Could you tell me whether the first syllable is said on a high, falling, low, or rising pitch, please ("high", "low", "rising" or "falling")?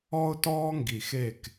high